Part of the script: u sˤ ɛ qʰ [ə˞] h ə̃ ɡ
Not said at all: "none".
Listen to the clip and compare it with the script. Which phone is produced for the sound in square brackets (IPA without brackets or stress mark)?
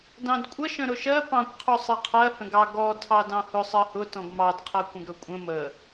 ɜ